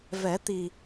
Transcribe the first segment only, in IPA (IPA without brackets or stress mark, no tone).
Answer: v